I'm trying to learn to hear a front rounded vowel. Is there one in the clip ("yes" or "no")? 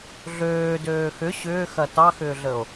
yes